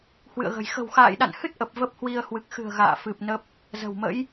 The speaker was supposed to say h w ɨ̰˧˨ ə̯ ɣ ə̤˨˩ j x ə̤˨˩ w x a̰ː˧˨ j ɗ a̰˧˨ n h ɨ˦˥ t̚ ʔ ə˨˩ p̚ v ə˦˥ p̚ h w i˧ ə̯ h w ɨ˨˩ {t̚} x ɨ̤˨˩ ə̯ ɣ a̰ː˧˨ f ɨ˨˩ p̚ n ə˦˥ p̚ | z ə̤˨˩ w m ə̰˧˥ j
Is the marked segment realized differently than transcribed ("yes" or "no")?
yes